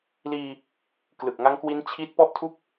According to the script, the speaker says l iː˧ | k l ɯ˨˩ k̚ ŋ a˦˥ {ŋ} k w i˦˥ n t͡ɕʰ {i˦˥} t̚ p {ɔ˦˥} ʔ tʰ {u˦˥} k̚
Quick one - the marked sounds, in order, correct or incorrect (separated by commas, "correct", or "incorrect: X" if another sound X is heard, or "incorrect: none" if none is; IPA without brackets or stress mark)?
correct, correct, correct, correct